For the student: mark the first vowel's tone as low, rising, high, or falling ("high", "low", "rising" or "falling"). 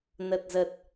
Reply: low